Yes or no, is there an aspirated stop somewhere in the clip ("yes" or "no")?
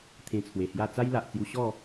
yes